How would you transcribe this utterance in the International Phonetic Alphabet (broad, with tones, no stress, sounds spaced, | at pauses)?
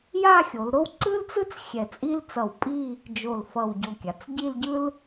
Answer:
j a˥˧ xʲ o˩˧ l ɾ o˥ w ǀ ɯ˥ l t͡s ɯ˥ t͡s xʲ ɛ˧˩ t͡sʼ i˥ l t͡s ʌ˧˩ w pʼ i˥˧ | d͡ʒ o˧˩ l f ʌ˧˩ w ɟ o˧˩ kʲ a˩˧ t͡s ɟ i˥˧ l ɟ ɯ˥ l